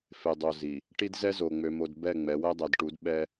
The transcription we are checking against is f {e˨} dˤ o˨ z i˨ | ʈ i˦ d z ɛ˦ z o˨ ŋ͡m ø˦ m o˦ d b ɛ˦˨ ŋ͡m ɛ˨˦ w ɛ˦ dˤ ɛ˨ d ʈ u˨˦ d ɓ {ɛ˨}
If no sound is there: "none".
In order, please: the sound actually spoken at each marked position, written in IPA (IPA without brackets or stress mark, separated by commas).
e˨, ɛ˦